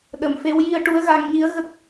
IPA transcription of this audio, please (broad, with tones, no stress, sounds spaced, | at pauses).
ɗ ə˨˩ m f e˧˥ w j i˧ ə̯ ʈ u˧˥ ə̯ ɣ a˧ ŋ ɲ i˧˥ ə̯ ɣ ə˦˥ k̚